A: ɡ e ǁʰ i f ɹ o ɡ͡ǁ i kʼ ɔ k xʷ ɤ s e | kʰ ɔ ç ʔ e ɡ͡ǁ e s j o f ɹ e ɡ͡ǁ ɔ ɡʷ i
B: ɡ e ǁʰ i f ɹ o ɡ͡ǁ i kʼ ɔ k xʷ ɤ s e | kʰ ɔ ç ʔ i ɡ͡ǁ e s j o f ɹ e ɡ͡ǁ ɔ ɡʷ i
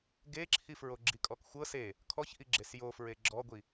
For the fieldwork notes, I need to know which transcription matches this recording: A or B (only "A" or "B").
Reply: B